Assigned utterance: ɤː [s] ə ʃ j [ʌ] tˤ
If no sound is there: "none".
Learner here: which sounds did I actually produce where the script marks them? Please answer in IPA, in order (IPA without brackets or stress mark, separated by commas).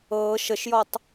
ʃ, ɔ